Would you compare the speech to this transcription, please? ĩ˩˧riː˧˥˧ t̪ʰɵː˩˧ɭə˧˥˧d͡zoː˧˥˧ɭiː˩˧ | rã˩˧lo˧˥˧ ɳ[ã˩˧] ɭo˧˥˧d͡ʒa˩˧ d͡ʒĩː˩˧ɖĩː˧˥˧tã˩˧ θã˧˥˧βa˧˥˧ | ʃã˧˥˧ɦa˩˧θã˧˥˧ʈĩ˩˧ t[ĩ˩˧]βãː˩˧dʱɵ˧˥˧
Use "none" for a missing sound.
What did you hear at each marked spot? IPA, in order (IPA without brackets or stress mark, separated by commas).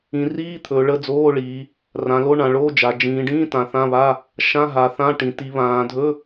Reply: ã˩˧, i˩˧